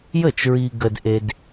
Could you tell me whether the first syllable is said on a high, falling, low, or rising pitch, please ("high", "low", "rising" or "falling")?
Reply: falling